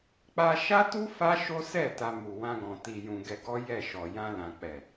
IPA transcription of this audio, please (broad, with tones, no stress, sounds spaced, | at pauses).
k͡p a˧ ʃ a˦ t u˦ f a˦ ʃ o˦ s ɛ˦˨ t a˧ m u˨ w ã˧ ɡ ɔ̃˨ t i˨ j ũ˨ ɡ ɛ˧ ɡ ɔ˦ j ɛ˦˨ ʃ ɔ˨ j ã˧ l ã˨ k͡p ɛ˨